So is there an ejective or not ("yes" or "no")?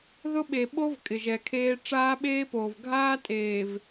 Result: yes